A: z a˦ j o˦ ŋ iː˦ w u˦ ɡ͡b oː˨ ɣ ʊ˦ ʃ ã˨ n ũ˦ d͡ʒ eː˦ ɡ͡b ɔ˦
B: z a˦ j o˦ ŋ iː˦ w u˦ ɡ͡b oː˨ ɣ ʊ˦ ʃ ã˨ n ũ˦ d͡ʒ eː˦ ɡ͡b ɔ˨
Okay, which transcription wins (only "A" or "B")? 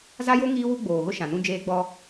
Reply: A